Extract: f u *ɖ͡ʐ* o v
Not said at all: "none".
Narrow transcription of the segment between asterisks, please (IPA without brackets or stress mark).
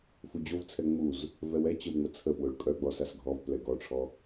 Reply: d͡ʑ